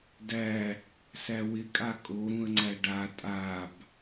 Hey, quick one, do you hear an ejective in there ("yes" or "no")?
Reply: yes